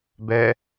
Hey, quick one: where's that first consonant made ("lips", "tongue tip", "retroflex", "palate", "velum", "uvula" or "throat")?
lips